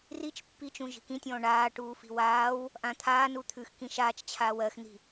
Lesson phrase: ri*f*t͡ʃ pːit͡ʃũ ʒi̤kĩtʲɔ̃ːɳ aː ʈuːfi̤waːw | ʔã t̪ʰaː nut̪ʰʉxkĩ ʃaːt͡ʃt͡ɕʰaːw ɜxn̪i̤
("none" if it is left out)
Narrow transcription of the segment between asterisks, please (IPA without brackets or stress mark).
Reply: none